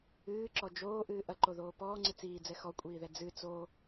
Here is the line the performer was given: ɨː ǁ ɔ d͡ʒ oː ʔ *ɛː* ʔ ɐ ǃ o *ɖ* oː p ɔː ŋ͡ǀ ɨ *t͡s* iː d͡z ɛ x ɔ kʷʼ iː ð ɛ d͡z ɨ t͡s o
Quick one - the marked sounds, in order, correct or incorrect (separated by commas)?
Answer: incorrect, incorrect, correct